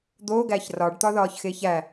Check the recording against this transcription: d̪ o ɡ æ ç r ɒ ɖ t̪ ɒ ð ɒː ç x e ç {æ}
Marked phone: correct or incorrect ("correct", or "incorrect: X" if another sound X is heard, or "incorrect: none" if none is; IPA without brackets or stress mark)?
correct